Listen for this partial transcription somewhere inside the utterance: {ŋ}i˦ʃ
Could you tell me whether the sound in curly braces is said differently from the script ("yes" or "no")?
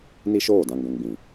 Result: yes